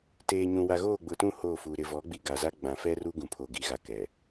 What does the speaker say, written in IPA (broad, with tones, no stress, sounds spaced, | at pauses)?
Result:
t eː˨ ɲ ũ˨ w a˨ ɣ oː˦˨ ɡ͡b ʊ˨ t ũ˦˨ h oː˦˨ f u˨ ɾ ɪ˨ v ɔ˨˦ ɡ͡b i˨ ɡ a˨ z a˦ ɡ͡b ã˨ f ɛ˦ r u˦ ɡ ũ˨ pʰ o˨ ɡ i˨ ɣ a˨ k ɛ˨